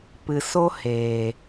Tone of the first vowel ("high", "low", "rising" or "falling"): low